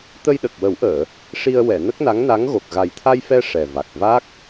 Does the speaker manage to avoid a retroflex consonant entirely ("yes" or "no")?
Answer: no